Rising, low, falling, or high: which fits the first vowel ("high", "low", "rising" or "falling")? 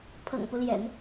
low